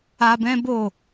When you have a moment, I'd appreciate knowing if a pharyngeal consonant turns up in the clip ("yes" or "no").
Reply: no